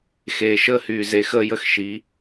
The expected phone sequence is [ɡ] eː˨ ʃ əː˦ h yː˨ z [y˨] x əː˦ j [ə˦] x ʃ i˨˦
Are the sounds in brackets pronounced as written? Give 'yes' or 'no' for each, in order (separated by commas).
no, no, yes